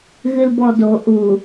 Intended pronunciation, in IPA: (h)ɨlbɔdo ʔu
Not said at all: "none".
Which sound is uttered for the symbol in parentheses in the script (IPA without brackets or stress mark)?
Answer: ɣ